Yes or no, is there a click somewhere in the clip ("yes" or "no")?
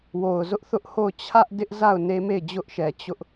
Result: no